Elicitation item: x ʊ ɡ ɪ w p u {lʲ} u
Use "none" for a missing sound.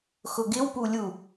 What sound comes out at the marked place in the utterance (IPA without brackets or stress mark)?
lʲ